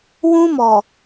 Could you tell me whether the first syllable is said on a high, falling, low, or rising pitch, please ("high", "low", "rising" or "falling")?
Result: high